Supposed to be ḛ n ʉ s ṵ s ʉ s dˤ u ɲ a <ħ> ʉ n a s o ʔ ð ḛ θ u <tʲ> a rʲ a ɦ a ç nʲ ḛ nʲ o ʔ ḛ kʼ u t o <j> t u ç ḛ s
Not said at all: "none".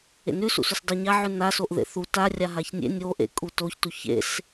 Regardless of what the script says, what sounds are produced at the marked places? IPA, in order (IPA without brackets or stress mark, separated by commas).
ʕ, t, ç